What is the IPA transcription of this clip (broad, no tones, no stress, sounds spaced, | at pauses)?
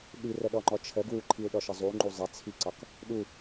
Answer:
ɗ i r ə ɗ ɔ ŋ͡ǃ ɔ t͡ʃʰ ə ɡ w u ǃʰ i u̯ ɗ ɔ ʃ ə zˤ u ŋ͡ǃ u zˤ ɛ t͡sʰ i ǀ ɒ k | ɗ u